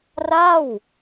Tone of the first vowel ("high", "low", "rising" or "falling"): falling